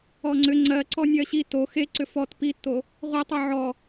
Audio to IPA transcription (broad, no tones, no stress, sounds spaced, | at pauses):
ɔ ŋ͡ǀ ʏ ŋ͡ǀ ɜ ǀ ɔ nʲ ɜ ɕ i t o x e ǀ ʏ f ɔ t p i tː o | ʁʷ e tˤ o ʕ ɔ